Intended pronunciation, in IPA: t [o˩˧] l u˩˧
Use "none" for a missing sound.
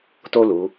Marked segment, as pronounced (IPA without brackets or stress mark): o˥